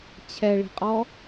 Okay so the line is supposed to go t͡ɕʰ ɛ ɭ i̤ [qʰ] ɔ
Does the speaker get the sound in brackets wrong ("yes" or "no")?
yes